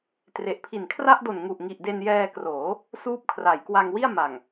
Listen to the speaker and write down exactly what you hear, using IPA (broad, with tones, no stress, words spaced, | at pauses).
tre˨˩ʔpʰi˨˩n kʰra˥˩ʔdo˨˩n ŋu˨˩ʔŋi˨˩ʔ de˧njɛː˧kroː˩˦ | suː˦˥p̚kʰra˩˦jkwa˧ŋ wi˥˩a̯ma˨˩ŋ